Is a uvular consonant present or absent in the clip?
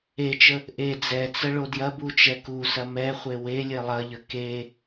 present